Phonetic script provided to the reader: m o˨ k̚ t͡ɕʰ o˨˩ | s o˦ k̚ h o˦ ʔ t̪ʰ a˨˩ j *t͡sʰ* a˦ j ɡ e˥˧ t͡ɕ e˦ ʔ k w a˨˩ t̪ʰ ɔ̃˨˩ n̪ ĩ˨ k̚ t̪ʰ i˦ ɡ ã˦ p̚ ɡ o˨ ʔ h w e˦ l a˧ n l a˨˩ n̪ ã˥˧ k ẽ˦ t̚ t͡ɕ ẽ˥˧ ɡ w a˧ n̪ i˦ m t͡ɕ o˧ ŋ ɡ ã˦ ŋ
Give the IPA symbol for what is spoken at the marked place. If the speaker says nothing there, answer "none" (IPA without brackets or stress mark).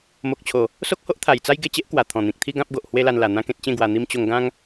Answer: t͡s